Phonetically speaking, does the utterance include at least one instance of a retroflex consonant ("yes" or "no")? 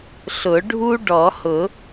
yes